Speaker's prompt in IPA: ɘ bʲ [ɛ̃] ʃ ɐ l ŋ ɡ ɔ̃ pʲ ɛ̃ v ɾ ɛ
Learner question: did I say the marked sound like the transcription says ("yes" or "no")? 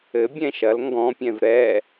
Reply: yes